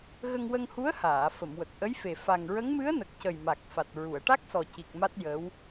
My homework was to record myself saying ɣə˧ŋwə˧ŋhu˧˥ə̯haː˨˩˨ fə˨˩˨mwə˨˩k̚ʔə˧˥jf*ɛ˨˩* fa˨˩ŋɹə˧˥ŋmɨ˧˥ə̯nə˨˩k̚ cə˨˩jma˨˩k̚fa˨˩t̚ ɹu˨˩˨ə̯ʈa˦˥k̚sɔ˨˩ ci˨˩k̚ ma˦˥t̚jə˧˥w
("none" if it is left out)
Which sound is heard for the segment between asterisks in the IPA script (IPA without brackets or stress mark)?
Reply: e˨˩